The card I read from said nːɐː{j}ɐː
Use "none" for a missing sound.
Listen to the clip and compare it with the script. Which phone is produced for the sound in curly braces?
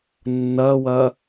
w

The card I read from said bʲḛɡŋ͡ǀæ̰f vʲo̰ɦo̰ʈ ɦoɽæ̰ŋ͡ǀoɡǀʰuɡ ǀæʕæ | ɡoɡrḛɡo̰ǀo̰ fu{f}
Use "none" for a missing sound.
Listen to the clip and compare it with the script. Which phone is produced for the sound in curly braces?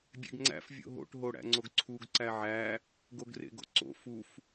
f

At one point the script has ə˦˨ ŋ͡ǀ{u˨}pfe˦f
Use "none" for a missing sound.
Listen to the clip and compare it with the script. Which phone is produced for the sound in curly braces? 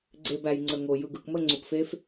u˨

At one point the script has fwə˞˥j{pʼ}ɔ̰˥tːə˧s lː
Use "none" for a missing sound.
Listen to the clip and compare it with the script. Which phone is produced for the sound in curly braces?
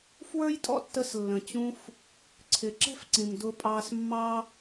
tʼ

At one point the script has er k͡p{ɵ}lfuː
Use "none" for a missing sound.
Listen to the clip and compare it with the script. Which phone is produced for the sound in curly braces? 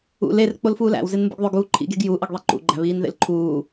o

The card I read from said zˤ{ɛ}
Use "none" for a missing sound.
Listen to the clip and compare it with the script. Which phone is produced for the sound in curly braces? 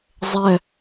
ɛ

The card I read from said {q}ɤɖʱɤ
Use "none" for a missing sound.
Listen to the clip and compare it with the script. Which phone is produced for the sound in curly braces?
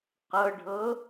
q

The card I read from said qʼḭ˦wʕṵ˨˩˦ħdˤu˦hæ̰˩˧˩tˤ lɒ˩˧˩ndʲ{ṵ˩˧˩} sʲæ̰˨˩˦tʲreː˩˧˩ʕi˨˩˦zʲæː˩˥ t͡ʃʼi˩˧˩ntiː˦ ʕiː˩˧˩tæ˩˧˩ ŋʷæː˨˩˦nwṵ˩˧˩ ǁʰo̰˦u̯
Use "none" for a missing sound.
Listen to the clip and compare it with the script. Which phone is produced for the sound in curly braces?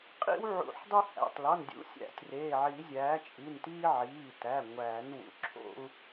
ṵ˩˥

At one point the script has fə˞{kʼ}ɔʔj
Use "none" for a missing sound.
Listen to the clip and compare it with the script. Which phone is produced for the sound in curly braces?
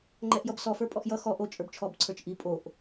pʼ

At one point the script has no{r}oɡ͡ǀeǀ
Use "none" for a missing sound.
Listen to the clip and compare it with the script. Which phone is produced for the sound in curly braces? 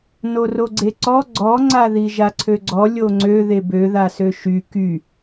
r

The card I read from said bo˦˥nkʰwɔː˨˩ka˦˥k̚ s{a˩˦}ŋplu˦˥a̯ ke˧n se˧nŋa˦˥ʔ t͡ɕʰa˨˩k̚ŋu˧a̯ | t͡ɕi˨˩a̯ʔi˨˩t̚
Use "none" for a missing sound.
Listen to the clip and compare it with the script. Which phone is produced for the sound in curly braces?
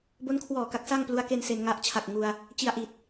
a˥˩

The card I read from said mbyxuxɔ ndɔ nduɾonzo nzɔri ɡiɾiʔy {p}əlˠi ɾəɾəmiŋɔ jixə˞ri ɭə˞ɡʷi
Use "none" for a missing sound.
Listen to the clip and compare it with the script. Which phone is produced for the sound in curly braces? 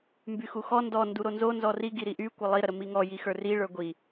kʷ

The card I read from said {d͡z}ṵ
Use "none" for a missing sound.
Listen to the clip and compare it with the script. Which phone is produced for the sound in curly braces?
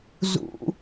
z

